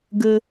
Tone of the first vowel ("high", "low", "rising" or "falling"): high